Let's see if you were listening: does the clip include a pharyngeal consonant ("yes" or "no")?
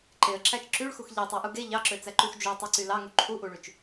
no